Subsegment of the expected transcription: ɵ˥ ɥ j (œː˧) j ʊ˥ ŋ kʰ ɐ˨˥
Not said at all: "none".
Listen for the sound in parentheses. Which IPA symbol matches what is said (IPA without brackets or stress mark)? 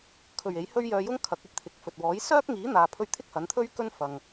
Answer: œː˧